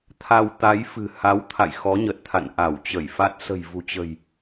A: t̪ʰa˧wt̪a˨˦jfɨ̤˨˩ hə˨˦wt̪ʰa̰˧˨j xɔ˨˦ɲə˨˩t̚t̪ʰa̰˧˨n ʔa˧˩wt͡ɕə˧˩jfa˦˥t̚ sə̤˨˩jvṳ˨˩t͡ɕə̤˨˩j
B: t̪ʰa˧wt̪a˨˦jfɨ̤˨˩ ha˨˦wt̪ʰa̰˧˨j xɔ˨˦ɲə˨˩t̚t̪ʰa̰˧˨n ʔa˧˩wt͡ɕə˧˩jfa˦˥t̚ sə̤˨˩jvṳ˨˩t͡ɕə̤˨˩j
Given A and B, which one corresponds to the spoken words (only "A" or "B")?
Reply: B